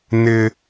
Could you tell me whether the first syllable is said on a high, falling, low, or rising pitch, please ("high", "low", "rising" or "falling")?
high